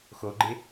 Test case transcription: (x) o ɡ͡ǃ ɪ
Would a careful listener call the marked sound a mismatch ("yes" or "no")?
no